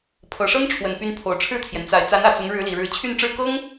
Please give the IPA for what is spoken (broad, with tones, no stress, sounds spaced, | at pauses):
pʰ ɤ˨˩ ʂ ɤ˥ ŋ ʈ͡ʂʰ w ə˨˩ n p y˧˥ n pʰ o˨˩ ʊ̯ ʈ͡ʂʰ ɻ̩˥˩ t̪ʰ j ɛ˩ n t͡s a˨˩ ɪ̯ t͡s a˧˥ n ä˨˩ t͡s ʊ˧˥ ŋ ɻ ɻ̩˧˥ l i˨˩ ɻ ɻ̩˧˥ t͡ɕʰ y˥˧ n ʈ͡ʂ ɻ̩˥˩ k ɤ˥ ŋ